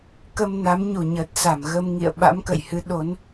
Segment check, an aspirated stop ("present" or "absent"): absent